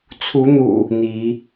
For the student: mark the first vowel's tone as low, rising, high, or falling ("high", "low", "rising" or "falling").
rising